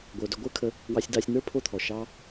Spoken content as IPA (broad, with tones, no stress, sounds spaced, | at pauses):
ɡʷ ə˞˧ d ø˧ ɡʷ ə˞˦ kʰ ə˧ | w ɑ˧ sʲ d ɑ˧ sʲ n̪ ə˞˦ pʰ o˦ t̪ʰ ɔ˨ ʃ ɑ˧